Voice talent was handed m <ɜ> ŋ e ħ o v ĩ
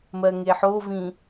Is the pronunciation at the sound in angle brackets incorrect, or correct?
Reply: correct